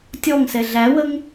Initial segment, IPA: tʲ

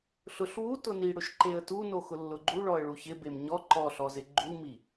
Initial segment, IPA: ɬ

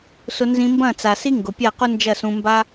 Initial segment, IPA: s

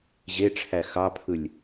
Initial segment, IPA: ʑ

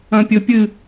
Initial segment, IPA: ɐ̃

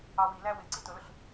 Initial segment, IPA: ɑ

